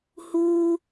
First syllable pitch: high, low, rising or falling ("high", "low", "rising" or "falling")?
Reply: high